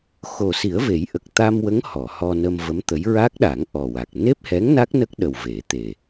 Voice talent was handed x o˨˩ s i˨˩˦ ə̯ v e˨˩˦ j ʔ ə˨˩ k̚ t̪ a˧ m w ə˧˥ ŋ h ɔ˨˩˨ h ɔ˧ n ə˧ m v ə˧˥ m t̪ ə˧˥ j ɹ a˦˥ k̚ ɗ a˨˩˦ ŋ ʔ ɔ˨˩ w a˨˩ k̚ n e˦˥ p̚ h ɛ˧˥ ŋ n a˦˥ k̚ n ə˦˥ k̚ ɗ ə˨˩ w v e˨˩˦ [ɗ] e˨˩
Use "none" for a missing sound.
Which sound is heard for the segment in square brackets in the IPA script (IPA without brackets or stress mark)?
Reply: t̪